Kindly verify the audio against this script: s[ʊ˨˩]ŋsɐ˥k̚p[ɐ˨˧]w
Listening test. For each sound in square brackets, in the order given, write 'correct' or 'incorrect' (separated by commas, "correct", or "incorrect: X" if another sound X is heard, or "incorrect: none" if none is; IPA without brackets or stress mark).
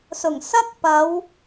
correct, correct